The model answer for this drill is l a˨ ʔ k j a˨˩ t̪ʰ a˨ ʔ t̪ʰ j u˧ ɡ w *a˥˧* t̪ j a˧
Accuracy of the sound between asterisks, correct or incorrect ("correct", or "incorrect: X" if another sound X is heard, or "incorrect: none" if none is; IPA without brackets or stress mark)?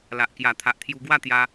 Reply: correct